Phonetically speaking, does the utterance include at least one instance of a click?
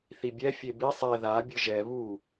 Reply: no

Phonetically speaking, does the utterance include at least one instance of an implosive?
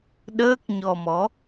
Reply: yes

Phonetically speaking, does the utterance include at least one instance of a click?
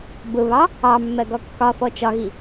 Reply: no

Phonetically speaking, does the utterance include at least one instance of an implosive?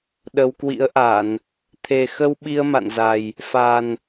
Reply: yes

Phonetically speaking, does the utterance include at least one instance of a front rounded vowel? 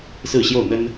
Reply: no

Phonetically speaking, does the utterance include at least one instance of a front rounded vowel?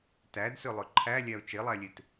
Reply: yes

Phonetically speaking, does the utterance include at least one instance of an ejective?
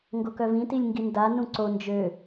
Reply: no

